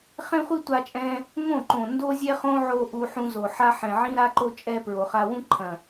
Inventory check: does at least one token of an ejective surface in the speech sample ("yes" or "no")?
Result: yes